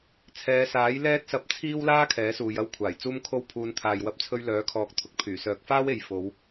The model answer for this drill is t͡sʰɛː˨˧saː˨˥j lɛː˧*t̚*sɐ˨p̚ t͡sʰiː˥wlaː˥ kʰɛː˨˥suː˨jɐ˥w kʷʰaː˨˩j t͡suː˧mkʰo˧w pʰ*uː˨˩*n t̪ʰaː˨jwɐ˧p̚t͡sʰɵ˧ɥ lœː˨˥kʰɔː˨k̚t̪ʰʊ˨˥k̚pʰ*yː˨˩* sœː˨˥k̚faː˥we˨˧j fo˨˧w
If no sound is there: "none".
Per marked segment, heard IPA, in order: t̚, uː˧, yː˨˩

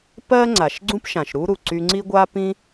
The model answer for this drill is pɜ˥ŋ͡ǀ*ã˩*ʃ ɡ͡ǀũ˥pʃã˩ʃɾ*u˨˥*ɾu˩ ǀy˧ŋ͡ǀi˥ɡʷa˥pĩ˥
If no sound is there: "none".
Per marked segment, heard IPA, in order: a˩, u˥

